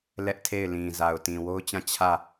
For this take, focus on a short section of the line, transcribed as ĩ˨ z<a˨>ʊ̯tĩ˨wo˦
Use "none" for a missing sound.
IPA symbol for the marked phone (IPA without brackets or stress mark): a˨